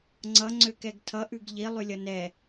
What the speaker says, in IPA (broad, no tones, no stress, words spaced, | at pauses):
ŋ͡ǀʌ ŋ͡ǀøkɛɡtʰʌ ʔʉɡʎi lˠʉlʲʌnɛ